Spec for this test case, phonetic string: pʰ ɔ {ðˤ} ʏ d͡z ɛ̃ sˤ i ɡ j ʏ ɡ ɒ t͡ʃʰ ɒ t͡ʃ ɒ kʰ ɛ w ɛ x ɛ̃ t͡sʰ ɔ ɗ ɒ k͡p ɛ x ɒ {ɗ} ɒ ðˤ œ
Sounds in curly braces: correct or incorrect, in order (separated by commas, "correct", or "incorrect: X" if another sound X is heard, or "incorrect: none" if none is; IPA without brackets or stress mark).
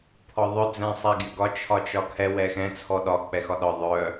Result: correct, correct